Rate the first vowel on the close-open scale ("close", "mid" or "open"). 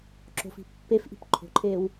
mid